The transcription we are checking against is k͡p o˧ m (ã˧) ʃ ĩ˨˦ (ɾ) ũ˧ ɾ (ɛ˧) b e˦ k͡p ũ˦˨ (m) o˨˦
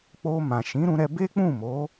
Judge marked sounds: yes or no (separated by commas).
no, yes, yes, yes